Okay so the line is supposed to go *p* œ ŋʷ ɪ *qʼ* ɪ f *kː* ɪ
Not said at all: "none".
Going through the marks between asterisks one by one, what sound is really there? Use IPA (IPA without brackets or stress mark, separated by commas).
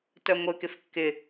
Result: t, k, kː